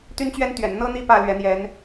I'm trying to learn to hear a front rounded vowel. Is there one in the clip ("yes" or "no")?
yes